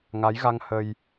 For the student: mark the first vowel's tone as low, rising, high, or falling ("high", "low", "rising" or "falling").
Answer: rising